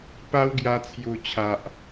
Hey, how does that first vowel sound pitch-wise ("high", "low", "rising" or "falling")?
high